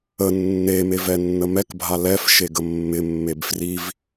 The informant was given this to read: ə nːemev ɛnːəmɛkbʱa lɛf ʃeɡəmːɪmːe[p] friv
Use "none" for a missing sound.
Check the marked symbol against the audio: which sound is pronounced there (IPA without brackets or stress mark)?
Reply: b